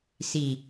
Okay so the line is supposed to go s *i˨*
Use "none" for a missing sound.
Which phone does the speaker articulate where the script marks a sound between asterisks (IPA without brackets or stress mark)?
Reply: i˨